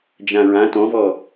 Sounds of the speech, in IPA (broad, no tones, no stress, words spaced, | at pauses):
d͡ʒãɹã tɔ̃vɔ